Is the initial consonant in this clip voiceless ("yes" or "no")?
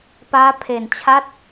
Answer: yes